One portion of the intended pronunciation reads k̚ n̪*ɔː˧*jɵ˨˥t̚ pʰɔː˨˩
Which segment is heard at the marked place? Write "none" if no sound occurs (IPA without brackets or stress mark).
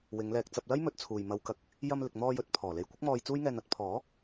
ɔː˧